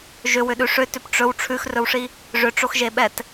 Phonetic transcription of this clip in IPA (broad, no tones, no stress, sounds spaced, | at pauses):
ʒ ʏ w ʏ ɗ ʉ ʂ ʏ t ʏ p ʈ͡ʂ ɵ w ʈ͡ʂʰ ʉ x r ɵ w ʂ i | ʐ ʏ ʈ͡ʂ o x ʒ e ɓ ɛ t